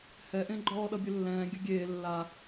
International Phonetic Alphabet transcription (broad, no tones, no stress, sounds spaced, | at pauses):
h ɛ ʔ ẽ ɡ͡ǃ ɔː ɗ ʌ bʲ ɘ lː ɛ̃ː ɡʲ ɘ ɡʲ eː lː a